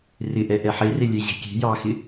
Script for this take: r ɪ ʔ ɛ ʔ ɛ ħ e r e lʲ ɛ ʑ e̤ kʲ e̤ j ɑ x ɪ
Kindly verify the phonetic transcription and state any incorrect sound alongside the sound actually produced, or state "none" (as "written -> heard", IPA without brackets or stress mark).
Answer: none